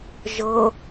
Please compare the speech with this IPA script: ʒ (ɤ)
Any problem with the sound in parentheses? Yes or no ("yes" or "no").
no